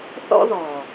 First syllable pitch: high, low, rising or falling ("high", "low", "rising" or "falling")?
high